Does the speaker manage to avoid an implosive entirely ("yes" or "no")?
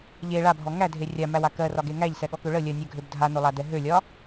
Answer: no